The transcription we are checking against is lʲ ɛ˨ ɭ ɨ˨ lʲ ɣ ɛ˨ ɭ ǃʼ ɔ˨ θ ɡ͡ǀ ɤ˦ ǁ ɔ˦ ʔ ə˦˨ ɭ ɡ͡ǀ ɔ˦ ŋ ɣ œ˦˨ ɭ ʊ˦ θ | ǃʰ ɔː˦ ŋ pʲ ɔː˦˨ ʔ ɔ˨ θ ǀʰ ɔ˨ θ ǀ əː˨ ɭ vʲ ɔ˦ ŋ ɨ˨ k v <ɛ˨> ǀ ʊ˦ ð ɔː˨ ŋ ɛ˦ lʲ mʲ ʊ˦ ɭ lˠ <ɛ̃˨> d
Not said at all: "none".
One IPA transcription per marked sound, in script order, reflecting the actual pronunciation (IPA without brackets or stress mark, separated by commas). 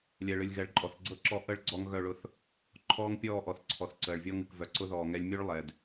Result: œ˨, ɛ˨